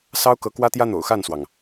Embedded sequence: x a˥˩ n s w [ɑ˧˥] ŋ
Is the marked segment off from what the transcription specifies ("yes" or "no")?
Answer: yes